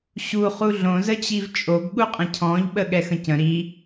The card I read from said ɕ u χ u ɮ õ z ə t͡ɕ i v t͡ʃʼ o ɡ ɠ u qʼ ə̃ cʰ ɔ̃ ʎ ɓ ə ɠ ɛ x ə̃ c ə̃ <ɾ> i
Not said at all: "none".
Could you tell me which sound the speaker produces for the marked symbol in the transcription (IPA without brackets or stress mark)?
ɾ